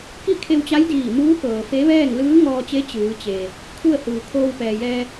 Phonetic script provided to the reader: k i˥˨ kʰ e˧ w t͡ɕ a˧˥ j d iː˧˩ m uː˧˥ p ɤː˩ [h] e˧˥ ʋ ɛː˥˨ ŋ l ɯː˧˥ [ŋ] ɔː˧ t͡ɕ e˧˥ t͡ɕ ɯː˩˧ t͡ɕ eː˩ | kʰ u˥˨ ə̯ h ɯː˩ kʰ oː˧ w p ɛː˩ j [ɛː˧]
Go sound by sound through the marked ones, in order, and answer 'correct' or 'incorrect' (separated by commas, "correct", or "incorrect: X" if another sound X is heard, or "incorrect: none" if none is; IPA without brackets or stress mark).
incorrect: f, correct, correct